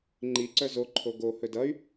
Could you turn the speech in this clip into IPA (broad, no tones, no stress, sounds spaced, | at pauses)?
ŋ͡ǃ i ǀ œ z o ǃʰ o ɡ o h ɵ d ʌ y̯